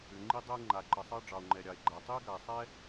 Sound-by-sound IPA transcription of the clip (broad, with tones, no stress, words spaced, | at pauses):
ʏ˩ ŋ͡ǃi˥dˤɛ˥e̯ ŋ͡ǃa˩ǃə˩sˤɑ˥ ɖ͡ʐɑ˩o̯ŋ͡ǃɛ˩ɾʲɑ˩e̯ɡ͡ǃa˩ tˤi˥e̯ɡa˩e̯sˤɛ˥